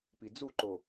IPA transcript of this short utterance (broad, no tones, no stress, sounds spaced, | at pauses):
p i d͡z u ǃ o